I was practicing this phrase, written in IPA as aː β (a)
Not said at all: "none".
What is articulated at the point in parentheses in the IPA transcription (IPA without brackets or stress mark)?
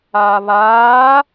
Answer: aː